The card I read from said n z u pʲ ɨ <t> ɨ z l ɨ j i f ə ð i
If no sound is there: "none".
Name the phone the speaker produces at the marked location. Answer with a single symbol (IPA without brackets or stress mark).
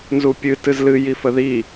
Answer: t